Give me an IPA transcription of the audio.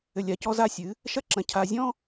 ɘ˨ lʲ a˨ c ɔ˦ z a˦ sʲ ɨ˨˦ | ʃ ɐ˦˨ ǁ ɐ̃˨ cʰ a˨ zʲ ɔ̃˦

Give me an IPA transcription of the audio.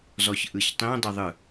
z ɔ ç ʔ ɯ ç tˤ ĩ dˤ i ðˤ ɯ

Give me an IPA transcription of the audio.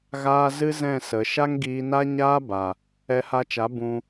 ɣ aː˧ z ɨ˦ z ɛ̃˦˨ s ə˨ ʃ a˦ ŋ ɡ iː˧ n a˦ ɲ aː˦ b a˨ | ɛ˧ h a˧ t͡ʃ a˨˦ b ũ˧

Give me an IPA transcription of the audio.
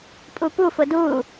pʼ u p u f ʊ d u

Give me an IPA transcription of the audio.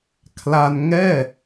kʰ l a˧ n ŋ ɛː˥˩

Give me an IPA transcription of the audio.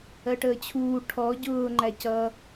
ɜ ʈ əː t͡ɕʰ uː ʈʰ ɔ ɟ ʊː ŋ͡ǃ æ c ʌ

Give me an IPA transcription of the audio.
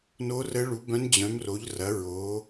n o˧˥ r ə˧˥ ɭ u˩˥ b œ̃˧˥ n d͡ʑ œ̃˩˥ m r o˩˥ ʎ r ɐ˩˥ ɹ o˩˥

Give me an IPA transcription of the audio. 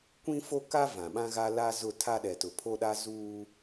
kʷ ĩ˦ f o˦ k a˦ v ã˨ ɓ ã˦ ɣ a˦ l a˦ z ʊ˦˨ tʰ a˦ ɗ ɛ˨ t ʊ˨ pʰ o˦ ɗ a˦ z uː˦

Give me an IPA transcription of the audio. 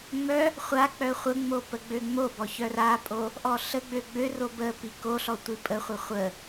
ŋ͡m œ | χʷ a k͡p œ χʷ ə ŋ͡m o p ə ɡ͡b ø ŋ͡m o b ɔ ç œ r a pʼ o | ʔ ɔ ɬ ə ɡ͡b ø ɡ͡b ø r o b ə p i k o ɬ ɔ tʷ i pʼ ə χʷ ə χʷ ə

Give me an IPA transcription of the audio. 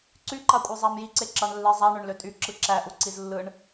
ǀ y ǃ ɑ kʷʼ ɑ zˤ æ m j i ǀ e ǁ ɑ ɳ lː e zˤ æ ɳ ø ɳ l ø tʼ y ǁ ɯ ǁ æ ʔ u ǀ i z lː ɯ ɳ

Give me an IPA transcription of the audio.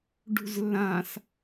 ɖ ṳ z lː ã s

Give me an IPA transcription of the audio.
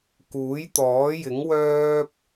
k uː˨˥ j t̪ ɔː˨˥ j ɪ˨˥ ŋ w œː˥ p̚

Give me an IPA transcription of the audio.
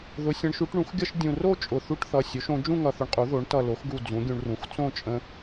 ð ʊ˩˥ sʲ ə̃˩˥ ɳ ʃ u˩˥ ʈ ɳ ũ˩˥ x ɡʲ ʌ˥˧ ʃ dʲ ũ˧˩ r o˥˧ t͡ʃʼ ʊ˧˩ θ u˥˧ ʈ θ ʌ˧˩ sʲ o˩˥ ʃ õ˩˥ d͡ʒ ũ˥˧ ŋ ʌ˧˩ θ ʊ˧ ɳ qʼ u˩˥ ð o˩˥ ɳ t ʌ˧˩ l o˩˥ x ɡ u˧˩ d͡z ũ˩˥ ɡʲ ũ˧ ɳ r ũ˩˥ x t͡s õ˥˧ t͡ʃʼ ə̃˧

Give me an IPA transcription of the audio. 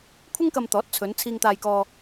kʷʰ ɪ˥ ŋ k ɐ˧ m t̪ ɔː˨˥ t̚ t͡sʰ ɵ˨˧ n t͡sʰ iː˧ ŋ t̪ aː˧ j k ɔː˧

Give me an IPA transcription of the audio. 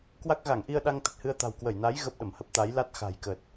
k w a˦˥ k̚ ɣ a˧˩ ŋ ʔ i˧ ə̯ ɗ a˧ ŋ t̪ ə˨˩ t̚ h ɨ˧ ə̯ t̪ a̤˨˩ w k w ə˧˩ j n a˨˦ j ɣ ə˦˥ p̚ ɗ ə˧˩ m h ə˦˥ p̚ t̪ a˨˦ j l a˦˥ t̚ x a̤˨˩ j k ə˨˩ t̚

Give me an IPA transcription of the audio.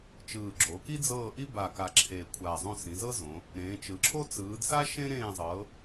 t͡ʃ ɯː˨˩ ɡ͡ǁ o˩˧ k i˥ d͡z ɤː˦˨ ʔ i˥ b a˨˩ k a˨˩ ǁʰ e˨˩ kʷʰ aː˨˩ zˤ õ˦˨ s ĩ˩˧ z ɤ˥ z õ˩˧ | ɾ ẽː˩˧ t͡ʃ ɯ˩˧ ǁʰ o˥ t͡s ɯː˩˧ d s a˥ ʃ ẽ˥ ɾ ẽː˦˨ zˤ ɤː˩˧

